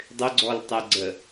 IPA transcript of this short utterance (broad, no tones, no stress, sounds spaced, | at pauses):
dˤ ʏ ɡ͡ǀ ɔ l tˤ ɛ ɡ͡ǀ ə